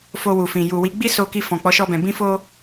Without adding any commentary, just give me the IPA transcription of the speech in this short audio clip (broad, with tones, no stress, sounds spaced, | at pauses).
f o˧ w u˨ f ĩ˨ j u˨ w i˨˦ ɡ͡b i˦ s o˧ k i˧ f ɔ̃˨ k͡p ɔ˨˦ ʃ ɔ˧ b ɛ̃˨ b ĩ˧ f o˧